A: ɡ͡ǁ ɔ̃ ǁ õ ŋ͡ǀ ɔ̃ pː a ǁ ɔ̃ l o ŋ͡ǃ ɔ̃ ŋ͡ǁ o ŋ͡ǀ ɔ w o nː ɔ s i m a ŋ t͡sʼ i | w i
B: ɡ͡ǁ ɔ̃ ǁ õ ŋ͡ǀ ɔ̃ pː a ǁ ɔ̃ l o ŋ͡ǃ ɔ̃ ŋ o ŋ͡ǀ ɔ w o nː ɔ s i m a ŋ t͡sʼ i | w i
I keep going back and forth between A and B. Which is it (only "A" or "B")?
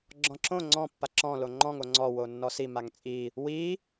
B